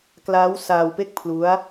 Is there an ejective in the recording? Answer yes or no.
no